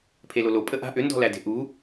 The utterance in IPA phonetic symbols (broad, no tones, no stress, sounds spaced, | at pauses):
pʰ e l o l o pʼ ə ʔ a̤ ʔ ʏ n d ɔ̤ l æ d e̤ ʔ u